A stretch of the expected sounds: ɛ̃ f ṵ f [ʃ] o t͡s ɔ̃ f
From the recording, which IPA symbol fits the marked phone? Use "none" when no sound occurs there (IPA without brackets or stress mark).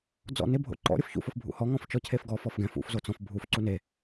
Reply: z